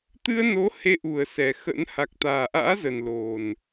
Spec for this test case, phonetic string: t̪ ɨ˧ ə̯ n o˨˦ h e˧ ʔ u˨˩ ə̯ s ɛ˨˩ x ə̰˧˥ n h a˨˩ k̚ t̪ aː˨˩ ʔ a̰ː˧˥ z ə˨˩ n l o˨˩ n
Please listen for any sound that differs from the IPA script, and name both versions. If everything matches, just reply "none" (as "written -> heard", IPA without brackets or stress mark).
none